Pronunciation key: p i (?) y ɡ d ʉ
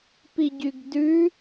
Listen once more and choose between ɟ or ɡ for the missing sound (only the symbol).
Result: ɟ